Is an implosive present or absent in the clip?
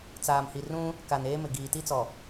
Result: absent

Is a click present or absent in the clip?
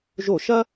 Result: absent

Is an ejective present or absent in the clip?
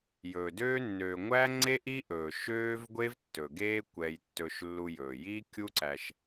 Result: absent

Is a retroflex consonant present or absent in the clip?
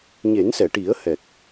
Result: present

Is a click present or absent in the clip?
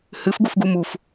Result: absent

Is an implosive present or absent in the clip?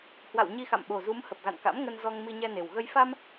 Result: present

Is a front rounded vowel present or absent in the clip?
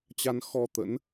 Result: absent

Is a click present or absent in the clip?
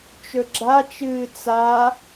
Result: present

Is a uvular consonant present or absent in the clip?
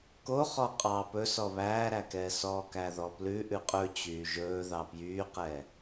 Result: present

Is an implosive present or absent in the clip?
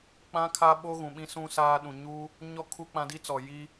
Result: present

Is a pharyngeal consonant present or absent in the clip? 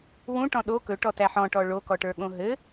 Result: present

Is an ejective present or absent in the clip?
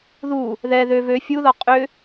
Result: present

